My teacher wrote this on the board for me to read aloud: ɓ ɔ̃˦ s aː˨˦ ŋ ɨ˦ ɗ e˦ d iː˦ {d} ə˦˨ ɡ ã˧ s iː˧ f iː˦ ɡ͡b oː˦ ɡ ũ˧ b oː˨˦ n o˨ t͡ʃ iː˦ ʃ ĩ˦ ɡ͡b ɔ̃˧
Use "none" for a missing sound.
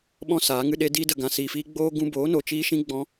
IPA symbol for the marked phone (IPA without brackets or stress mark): d